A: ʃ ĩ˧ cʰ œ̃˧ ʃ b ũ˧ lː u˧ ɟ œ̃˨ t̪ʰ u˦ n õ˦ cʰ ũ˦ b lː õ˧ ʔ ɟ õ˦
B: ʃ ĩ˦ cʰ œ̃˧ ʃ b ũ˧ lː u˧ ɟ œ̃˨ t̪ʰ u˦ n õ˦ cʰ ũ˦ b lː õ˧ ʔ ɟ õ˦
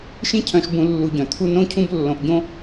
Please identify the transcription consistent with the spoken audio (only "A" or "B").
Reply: B